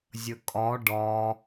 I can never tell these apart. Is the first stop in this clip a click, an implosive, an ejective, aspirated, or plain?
ejective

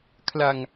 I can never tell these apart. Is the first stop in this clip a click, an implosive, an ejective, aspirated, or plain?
aspirated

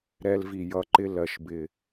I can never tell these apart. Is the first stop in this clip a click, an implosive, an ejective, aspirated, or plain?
click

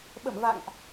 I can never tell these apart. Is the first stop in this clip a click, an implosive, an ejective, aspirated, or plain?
implosive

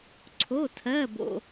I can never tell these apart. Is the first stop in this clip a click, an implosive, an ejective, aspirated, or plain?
click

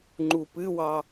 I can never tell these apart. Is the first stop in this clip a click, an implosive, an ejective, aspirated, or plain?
click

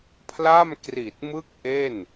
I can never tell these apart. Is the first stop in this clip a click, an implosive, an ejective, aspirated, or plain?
aspirated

